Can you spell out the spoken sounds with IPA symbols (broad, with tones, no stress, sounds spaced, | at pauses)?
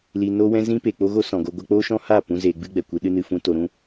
l i˨ n o˧ w ɛ̃˧ z ĩ˦ p e˨ k͡p o˦ ɣ o˦ s ɔ̃˨ ɡ o˧ ɡʷ a˧ k͡p o˦ ʃ ɔ̃˦ h a˦˨ p ũ˦ z eː˧ ɡ͡b ɨ˦ ɡ͡b ɛ˨ kʷ ɨ˧ ɗ ɨ˦ n ɨ˧ f ũ˦ t o˧ ɾ ũ˦